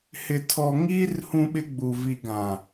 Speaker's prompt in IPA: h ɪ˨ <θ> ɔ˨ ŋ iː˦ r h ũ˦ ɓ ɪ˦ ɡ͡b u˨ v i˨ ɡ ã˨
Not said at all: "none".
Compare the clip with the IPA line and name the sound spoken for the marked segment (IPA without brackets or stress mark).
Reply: tʰ